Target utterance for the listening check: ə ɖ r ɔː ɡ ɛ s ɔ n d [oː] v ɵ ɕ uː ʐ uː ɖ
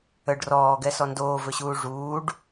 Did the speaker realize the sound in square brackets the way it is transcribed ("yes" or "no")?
yes